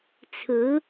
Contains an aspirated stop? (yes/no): yes